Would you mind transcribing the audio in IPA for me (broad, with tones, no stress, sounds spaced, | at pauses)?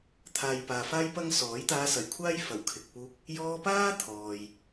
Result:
t̪ʰ aː˨ j p aː˨ f aː˥ j p ɐ˥ ŋ s ɔː˨˥ j t̪ aː˧ s ɐ˨˩ j kʷʰ aː˥ j f ɐ˨˩ w kʰ ɪ˨ k̚ p uː˧ k̚ | j ɔː˧ p aː˥ t̪ʰ ɔː˨ j